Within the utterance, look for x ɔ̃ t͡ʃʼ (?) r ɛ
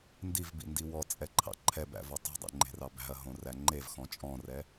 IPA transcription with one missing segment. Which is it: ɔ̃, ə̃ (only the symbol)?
ɔ̃